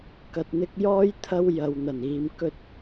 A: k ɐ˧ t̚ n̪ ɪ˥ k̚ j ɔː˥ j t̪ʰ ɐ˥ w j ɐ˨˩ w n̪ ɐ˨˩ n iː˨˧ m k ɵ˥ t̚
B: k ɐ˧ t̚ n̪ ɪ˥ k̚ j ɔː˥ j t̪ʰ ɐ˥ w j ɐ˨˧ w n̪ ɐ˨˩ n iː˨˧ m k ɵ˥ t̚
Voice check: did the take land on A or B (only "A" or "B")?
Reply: B